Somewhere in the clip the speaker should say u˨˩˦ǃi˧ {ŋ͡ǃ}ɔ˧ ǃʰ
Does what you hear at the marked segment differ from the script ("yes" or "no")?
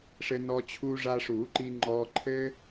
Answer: no